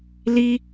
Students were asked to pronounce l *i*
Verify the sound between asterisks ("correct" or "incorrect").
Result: correct